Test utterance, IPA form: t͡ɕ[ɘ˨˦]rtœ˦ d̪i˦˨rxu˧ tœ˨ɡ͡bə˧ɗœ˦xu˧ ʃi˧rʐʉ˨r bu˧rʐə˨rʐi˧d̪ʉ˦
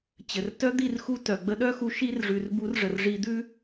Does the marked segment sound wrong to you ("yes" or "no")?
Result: yes